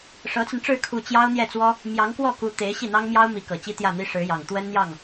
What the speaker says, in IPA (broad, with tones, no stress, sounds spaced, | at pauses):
ʂ ɤ˧˥ t͡s ə˧ n ʈ͡ʂ ɻ̩˥˧ kʰ u˥˩ t͡ɕ j ɑ˥ ʊ̯ n̪ j ɛ˥˩ t͡s w ɔ˥ | m j ɑ˧˥ ŋ k w ɔ˥˩ k u˧˥ t̪ e˧˥ ɪ̯ ɕ i˥˩ n̪ ɑ˥ ŋ m j ɑ˥ ʊ̯ m i˧˥ k ɤ˨˩ t͡ɕ i˥ t̪ j ä˥˩ n̪ i˥ ʂ ɻ̩˧˥ j ɑ˨˩ ŋ t̪ w ə˥ n n̪ j ɑ˥˩ ŋ